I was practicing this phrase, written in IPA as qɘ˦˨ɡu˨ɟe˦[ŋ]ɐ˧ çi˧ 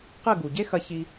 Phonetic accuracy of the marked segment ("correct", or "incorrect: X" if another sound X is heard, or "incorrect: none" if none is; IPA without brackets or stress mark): incorrect: x